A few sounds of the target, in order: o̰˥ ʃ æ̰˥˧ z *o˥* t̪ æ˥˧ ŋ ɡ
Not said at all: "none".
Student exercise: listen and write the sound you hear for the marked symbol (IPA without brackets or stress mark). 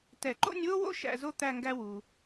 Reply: o˥